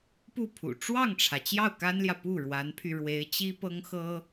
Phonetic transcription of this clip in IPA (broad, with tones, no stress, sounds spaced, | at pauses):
p u˥˩ pʰ ṵ˨˩ ʈ͡ʂ w ɑ˥˩ ŋ ʈ͡ʂʰ ä˩ t͡ɕ j ɑ˥˩ ʊ̯ k a˥ n l j ä˨ p u˥˩ ɻ w a˧˥ n pʰ y˧ ɻ w e˧˥ ɪ̯ t͡ɕ i˥ p ɤ˥ ŋ x ɤ˥